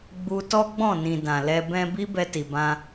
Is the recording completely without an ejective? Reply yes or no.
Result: yes